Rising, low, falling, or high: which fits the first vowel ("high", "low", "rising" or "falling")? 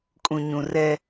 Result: low